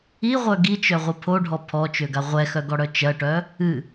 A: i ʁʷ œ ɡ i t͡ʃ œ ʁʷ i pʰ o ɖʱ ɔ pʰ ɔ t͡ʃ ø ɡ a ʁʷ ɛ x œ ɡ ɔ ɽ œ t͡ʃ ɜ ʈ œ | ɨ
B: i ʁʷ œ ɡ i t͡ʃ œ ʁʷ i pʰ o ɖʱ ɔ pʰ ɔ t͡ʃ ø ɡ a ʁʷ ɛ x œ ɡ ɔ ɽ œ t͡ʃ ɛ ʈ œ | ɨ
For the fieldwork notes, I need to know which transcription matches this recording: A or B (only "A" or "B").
A